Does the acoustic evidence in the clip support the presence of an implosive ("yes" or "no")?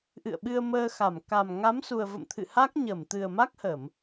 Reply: yes